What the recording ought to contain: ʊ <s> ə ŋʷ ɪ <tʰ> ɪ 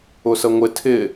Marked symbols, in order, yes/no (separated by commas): yes, yes